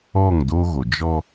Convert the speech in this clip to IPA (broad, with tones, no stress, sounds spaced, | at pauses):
ɔ˦˨ ŋ d o˦ ɣ o˨ d͡ʒ ɔ˦